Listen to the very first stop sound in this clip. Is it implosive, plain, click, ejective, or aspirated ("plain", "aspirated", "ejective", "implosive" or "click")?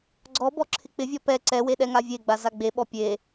click